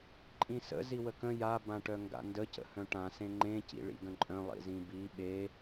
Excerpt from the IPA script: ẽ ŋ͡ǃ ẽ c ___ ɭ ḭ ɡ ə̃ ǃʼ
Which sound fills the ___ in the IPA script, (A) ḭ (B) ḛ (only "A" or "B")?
A